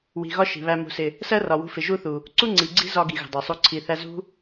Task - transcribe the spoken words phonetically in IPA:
w i̤˨ ɣ ɒ˧ ʃ i̤˨ β æ˧ m ṳ˨˦ s ɪ˨ | s ɜ˦ r ɒ˨ w ṳ˧ f ɪ˨ ʒ u˦ θ u˨ | ǀ u˦ ŋ͡ǀ i˨ ɡ͡ǀ i̤˦ z ɒ˧ ɡ i˨ ɣ ə̤˨ dˤ ɜ˨ sˤ u˧ ǀʰ i˨ θ æ˧ z ṳ˦

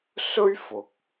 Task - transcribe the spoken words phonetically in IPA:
s ɵ˥ ɥ f ʊ˨˥ k̚

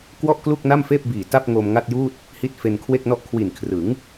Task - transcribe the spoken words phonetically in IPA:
k w ɔ˥˩ ʔ k l u˥˩ k̚ n a˥˩ m f eː˥˩ p̚ b iː˨˩ t a˥˩ p̚ ŋ o˧ m ŋ a˥˩ t̚ j uː˥˩ t̚ | h i˦˥ t̚ f e˧ n kʰ w e˥˩ k̚ n ɔ˥˩ ʔ kʰ w i˨˩ n kʰ r ɯ˩˦ ŋ

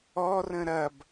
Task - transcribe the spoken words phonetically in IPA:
ɔ r ə̃ ɾ ɐ b

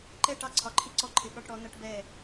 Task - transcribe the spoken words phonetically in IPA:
ǃ ɛ˦˨ ʈ ɑ˦ ǀʰ ɒ˨ ǃʰ i˦ ǀ ɔ˦ ǃʰ ɪ˨˦ ɠ ɒ˦ ʈ ɽ ɔ˨˦ n ʌ˦ ʈ b ɛ˦˨

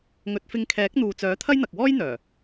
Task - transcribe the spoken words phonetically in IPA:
ŋ ɵ˨˥ t̚ f ɪ˧ ŋ kʰ ɛː˨˥ k̚ n̪ uː˨ t͡s œː˨˥ t̪ʰ ɐ˥ j n̪ ɐ˨ k̚ w ɔː˥ j n̪ œː˨˩

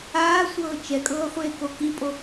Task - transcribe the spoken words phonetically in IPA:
aː sʷ ɤː t͡ʃ ɛ kʼ ɤː χʷ eː k o k i pʼ o

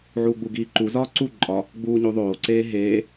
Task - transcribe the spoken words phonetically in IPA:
ʕ uː ɡ͡b u ɡ iː ǃ u z ɒː ǀ u ǃʼ ɒ | ɡ͡b uː ɲ u ðˤ oː ǀ eː ɦ eː

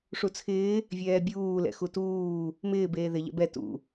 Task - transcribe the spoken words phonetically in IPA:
ʂ u t͡sʰ ɪː | vʲ ɛː bʲ uː l ɛ̰ x u t uː | m ɪː b eː ð ɪ ʎ ɛ̰ b ɛ t ṵ

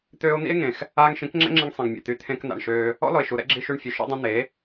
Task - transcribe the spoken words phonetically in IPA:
t̪ øː˧ o̯ n̪ ḭ˦ e̯ ŋ ẽ˨ x | aː˧ ŋ ʃ ĩ˨˦ k ŋ͡ǁ ɛ̰˦ ŋ͡ǁ ĩ˧ ŋ sˤ ĩ˨ ŋ mʲ ɛ̰˨ t̪ y˧ t̪ʰ ẽ˧ k n̪ a̰˨ ɳ ʃ øː˧ | ɔ̰˦ l ɔ˨ e̯ ʃ u˨ ɾ ɛ̰˦ ɡ͡ǁ i˧ ʃ y˧ ɳ fʲ ø˨ ʃ ɛ̰˧ dˤ õ˧ n̪ e˨˦

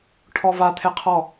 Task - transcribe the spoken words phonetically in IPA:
ʈʰ ɔ v a t̪ʰ e qʰ ɔ

